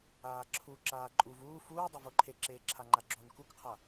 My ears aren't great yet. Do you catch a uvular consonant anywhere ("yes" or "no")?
yes